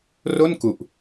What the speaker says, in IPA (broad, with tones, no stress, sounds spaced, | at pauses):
r o˥˩ n k u˨˩ ʔ